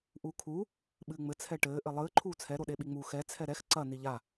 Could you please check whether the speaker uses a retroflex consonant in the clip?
yes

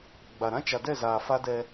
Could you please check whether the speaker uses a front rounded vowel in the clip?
no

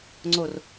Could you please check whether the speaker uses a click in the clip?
yes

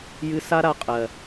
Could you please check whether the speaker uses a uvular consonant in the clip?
yes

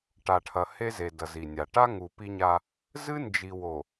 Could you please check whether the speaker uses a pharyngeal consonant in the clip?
no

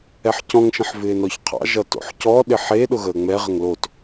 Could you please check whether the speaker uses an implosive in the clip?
yes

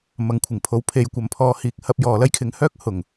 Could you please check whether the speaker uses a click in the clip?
no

